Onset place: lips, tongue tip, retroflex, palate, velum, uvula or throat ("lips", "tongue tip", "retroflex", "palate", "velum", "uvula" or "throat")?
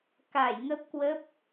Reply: velum